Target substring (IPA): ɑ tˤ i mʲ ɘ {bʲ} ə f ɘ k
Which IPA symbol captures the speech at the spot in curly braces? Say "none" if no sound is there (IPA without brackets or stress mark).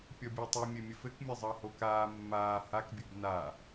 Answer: mʲ